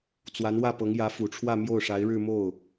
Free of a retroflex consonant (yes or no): no